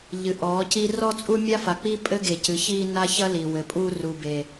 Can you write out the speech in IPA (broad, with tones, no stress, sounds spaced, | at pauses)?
ʎ ɨ˨ ʔ ɔː˨˦ c i˦ r ɔ˦ t͡sʼ u˦ mʲ a˦ f a˨ k͡p i˦ pʼ ɘ˦ ɡ e˨ c ɨ˨ ç iː˦ n a˦ ç ɐ˦ l i˨ w ɘ˨ pʼ uː˦ r u˨ b e˨